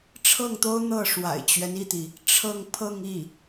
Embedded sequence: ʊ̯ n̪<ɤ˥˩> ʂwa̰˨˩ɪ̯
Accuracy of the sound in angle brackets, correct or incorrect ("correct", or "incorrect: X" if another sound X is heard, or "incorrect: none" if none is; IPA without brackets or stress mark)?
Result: correct